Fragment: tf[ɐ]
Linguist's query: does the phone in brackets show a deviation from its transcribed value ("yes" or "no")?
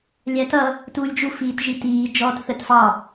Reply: yes